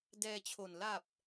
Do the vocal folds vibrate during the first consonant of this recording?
yes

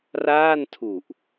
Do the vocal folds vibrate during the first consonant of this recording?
yes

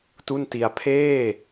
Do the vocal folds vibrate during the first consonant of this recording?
no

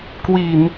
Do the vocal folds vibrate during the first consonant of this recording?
no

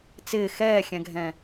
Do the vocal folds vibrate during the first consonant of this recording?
no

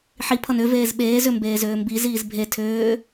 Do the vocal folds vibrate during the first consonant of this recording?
no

